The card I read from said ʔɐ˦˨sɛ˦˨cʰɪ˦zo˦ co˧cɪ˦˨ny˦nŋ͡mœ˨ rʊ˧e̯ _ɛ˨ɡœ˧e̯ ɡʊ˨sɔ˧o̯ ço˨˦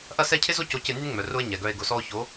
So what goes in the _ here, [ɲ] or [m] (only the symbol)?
ɲ